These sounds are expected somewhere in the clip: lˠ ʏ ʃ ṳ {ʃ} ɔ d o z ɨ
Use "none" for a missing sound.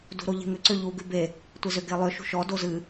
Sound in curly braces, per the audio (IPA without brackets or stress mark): ʃ